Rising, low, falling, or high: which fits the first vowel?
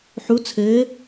rising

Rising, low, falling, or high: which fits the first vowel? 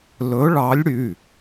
rising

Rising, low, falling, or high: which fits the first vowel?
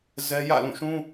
high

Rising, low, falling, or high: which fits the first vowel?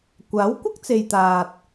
rising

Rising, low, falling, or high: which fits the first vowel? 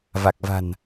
low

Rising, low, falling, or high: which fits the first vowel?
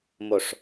falling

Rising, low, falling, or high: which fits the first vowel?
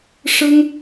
high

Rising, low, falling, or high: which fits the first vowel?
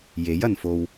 rising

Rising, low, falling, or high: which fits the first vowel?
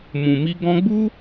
low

